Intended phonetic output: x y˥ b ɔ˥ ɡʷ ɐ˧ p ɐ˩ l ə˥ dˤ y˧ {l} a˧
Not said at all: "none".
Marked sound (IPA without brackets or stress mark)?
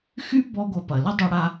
ɽ